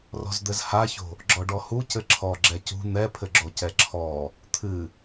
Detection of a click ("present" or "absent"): present